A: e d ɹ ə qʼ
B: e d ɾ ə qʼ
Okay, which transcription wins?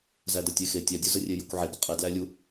B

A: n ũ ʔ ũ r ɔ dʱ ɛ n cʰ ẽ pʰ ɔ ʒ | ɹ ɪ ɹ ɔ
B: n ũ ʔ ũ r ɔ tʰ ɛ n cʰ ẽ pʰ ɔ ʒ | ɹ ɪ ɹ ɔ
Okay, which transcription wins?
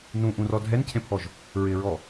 A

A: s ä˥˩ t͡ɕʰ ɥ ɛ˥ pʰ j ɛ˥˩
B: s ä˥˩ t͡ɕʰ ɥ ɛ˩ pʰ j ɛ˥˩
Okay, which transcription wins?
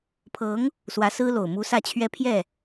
A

